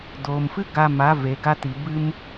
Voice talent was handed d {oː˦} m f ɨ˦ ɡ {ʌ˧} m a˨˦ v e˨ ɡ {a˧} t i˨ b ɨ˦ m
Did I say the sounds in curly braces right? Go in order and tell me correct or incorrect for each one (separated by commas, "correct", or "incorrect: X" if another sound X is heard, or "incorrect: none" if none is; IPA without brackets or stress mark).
incorrect: oː˨, incorrect: a˧, correct